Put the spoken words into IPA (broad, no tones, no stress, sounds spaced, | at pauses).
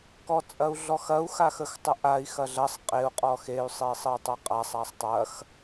k ɔ t͡sʼ ɐ u̯ ɮ ɔ x ɐ u̯ x a x ə x tˤ ə ʔ a i̯ x ɐ ɮ ɐ sˤ qʼ e u̯ qʼ ɔ x e y̯ sˤ e sˤ ə y̯ tˤ a qʼ a sˤ a sˤ tˤ ɐ x